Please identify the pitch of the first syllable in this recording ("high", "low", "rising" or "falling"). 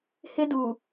high